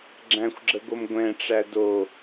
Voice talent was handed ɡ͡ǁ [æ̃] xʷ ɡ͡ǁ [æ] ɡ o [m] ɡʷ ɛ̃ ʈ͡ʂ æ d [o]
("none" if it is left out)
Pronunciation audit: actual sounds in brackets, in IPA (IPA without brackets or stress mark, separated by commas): æ̃, ə, m, o